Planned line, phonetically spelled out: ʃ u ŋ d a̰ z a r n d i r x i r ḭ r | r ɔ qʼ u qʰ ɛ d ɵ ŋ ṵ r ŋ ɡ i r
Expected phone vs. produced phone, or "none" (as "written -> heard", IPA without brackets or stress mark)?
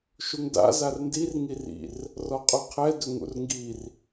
x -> ŋ